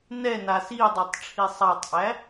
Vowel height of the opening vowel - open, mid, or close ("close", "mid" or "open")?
mid